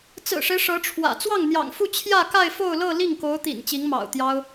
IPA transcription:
t͡sɹ̩˨˩ʂe˦ɪ̯ ʂɤ˧˥ʈ͡ʂʰwä̰˨˩ t͡swɑ˥˩ŋn̪jɑ̰˨˩ŋ fu˥˧ t͡ɕʰjä˥˧ka˥˧ɪ̯ fo˥˧ʊ̯lɤ˥˧ li˥˩ŋko˧˥ʊ̯t̪ḭ˨˩n t͡ɕi˧˥ŋmɑ̰˨˩ʊ̯t̪jɑ˥ʊ̯

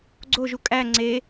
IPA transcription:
ɡ͡ǀoʒu kʼæ ŋ͡ǀe

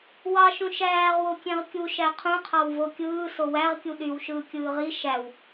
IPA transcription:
wɑʃũ ʃæːʁwo kʲẽʁkʲuʃæ qʰũqʰɑw vokʲɯː sowæʁkʲu ɗyw ʃɯːkʲɯːʁi ʃæw

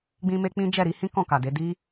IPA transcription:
ɡ͡bĩ˧me˧ k͡pĩ˦ d͡ʒɛ˦˨ɾi˧hĩ˦ kɔ̃˦˨ka˨de˨˦ di˦

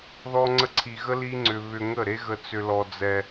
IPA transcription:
ðɔ˧ŋ͡ǀə˧ǀʰi˨ɣə˦ li˦ŋ͡ǀʏ˧ βʏ˧ŋə˦˨ ɾe˦ɣə˧t͡sʏ˧lɔ˧ d͡zɛ˧

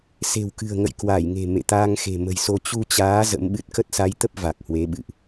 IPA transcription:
se̤˨˩wkɨ̤˨˩ə̯ŋə̰˧˨j kwa˧˩jŋe̤˨˩ mḛ˧˨t̪aː˧ŋxe̤˨˩ mə̤˨˩jso˧ t͡ɕu˧t͡ɕaː˨˦ zə̰˧˥mɓɨ˦˥t̚ kə˦˥t̚sa˨˦jt̪ə˦˥p̚ va˨˩k̚hwe˨˦ɓɨ̰˧˨ʔ

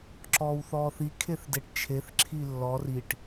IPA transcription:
ǁɔːwθɔːθi kʰeθdeʈt͡ʃʰeθ ǁʰilːɔr iʈ

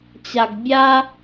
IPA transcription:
t͡ɕa˩ɡ bʲa˧

